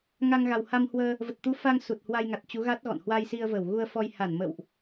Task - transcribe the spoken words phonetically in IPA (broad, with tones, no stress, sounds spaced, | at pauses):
ŋ a˧ ŋ ɣ a˨˩ w h a˧ m h w əː˧ | v ə˨˩ t̚ t̪ u˨˦ f a˧ ŋ s u˨˩ t̚ h w a˧ j ŋ a˨˩ t̚ t͡ɕ u˨˦ ɣ a˦˥ t̚ ɣ ɔ̰˧˨ n h w a˧ j s i˧ ə̯ v ə˧˩ w ɣ u˧ ə̯ f ɔ˧ j h a˧˩ n m ə̰ː˧˨ w ʔ